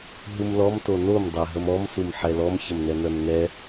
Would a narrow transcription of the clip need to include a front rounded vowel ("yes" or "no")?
yes